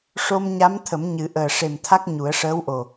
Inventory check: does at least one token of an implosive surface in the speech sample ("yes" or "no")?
no